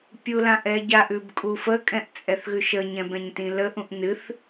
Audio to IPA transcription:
pʲ u l ã ʔ ɛ ɟ a ʔ ʉ b kʼ u f ə kʼ ɛ̃ ʔ t͡sʼ ɛ θ ɣ ʉ ʃ ə ɲ ɛ̃ b ɛ̃ ɲ t ĩ l ə ʔ ũ ʔ n ɨ θ

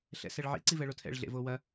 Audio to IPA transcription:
ɬ ɛ̰ s ɛ ɭ ʕ ḭ ǀ i v ɛ ɭ o tʰ ɛ̰ ɭ ɮ ḛ v o w ɐ

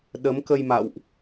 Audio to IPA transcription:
ɗ ə˨˦ m k ə˧ j m a̰˧˨ w ʔ

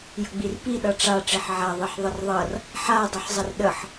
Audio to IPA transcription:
j ə ɡ͡b i r p i ɗ ʌ ʈ͡ʂ a ʈ͡ʂ i ħ ʕ a ðˤ i ħ ðˤ ə r ðˤ ʌ r | ħ a dˤ ə ħ zˤ ə r ɗ ə ħ

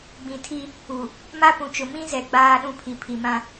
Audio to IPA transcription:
ɡ͡b ĩ˨ tʰ i˦ | u˨ | m a˦ p ũ˨ t͡ʃ ʊ˨ m ĩ˦ z ɛ˨ ɡ͡b aː˨ ɗ ũ˨ pʰ i˨ pʰ i˨ m ã˦

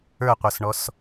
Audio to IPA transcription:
ə˞ qʷ ə˞ s ɳ ɔ s

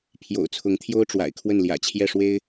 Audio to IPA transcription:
pʰ j o̰˨˩ ʊ̯ t͡sʰ ʊ˧˥ ŋ t̪ʰ j o˥ ʊ̯ ʈ͡ʂ w a̰˨˩ ɪ̯ kʰ w ə˥˩ n l j ä̰˨˩ t͡ɕʰ j ɛ˥˩ ʂ w e˥ ɪ̯

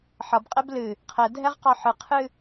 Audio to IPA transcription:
ħ ʌ b qʼ ɛ b l ɨ | qʰ ɛ dʱ ɛ ʁ q ɒ ħ ɨ qʰ ɨ

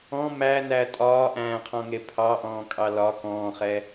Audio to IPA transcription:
ɔ̃ m æ n æ tʼ ɒː ʔ æ̃ː qʰ ɔ̃ ŋ e pʰ ɑ ʔ ɔ̃ː kʼ ɑ l ɒ k ɔ̃ː χ ɛ

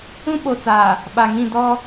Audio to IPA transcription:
ũ˦ ɓ o˨ t͡s aː˨ | ɓ a˨ ŋ ĩ˦˨ d ɔ˦

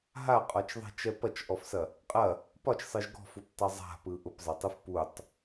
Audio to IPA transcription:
ɦ a qʼ ɒ t͡ʃ ðˤ ɛ̤ t͡ʃ ɛ p ɐ t͡ʃ ʔ ɔ f s ɐ | qʼ ɐ | p ɒ t͡ʃ sˤ ɯ ʒ ɡ ɔ̤ f u p tˤ ɛ zˤ a̤ p ɯ ʔ ʊ p zˤ ɐ tˤ ɯ f p u tˤ

